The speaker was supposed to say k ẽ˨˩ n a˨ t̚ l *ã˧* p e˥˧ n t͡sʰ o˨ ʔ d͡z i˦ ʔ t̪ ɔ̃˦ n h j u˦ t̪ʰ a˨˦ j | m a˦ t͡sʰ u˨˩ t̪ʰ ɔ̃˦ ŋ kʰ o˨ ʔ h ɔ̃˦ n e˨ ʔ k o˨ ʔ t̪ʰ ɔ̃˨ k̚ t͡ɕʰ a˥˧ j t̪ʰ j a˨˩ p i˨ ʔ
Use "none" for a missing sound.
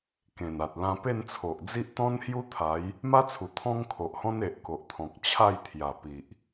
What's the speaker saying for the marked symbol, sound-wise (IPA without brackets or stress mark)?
ã˧